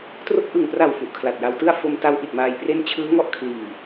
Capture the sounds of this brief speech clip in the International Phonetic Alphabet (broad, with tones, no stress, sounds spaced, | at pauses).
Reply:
t r o˦˥ k̚ ʔ ɯ˨˩ ŋ p r a˨˩ w f u˨˩ ʔ kʰ l a˨˩ t̚ j a˧ w t ɯ˥˩ a̯ f o˧ m t a˦˥ w ʔ i˨˩ t̚ m aː˧ j p r e˥˩ n t͡ɕʰ ɯː˦˥ ŋ ɔ˥˩ ʔ kʰ l iː˨˩